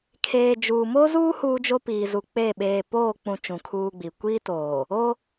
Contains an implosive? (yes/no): yes